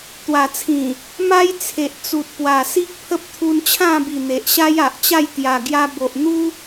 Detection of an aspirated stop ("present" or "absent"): present